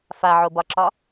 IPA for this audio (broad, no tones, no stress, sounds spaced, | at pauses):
f a ʕ o b ɒ ǁ ɒ